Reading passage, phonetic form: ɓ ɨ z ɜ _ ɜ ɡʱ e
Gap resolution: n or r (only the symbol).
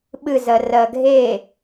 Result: r